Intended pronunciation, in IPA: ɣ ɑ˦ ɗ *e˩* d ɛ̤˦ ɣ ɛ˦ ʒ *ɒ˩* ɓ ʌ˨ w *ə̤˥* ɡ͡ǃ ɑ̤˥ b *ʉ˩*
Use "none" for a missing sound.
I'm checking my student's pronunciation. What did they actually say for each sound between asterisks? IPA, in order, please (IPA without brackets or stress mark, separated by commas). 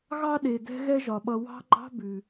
e˩, ɒ˩, ɑ̤˥, ʉ˩